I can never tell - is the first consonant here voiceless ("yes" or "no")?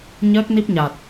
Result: no